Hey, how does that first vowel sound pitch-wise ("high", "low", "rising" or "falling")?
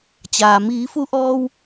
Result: low